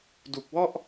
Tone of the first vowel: low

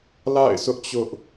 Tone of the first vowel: falling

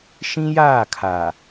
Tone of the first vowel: high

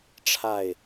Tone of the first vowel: falling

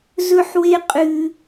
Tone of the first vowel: high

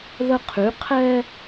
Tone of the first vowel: high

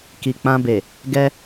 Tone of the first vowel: low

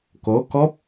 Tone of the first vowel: rising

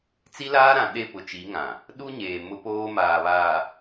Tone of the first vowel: high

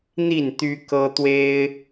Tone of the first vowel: falling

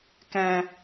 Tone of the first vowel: low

